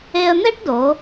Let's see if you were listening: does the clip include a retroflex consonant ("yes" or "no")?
yes